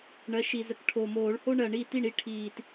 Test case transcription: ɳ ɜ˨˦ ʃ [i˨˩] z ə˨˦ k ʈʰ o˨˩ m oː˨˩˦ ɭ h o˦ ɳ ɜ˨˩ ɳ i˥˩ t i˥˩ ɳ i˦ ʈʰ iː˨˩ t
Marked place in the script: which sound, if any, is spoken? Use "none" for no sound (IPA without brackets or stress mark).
i˨˩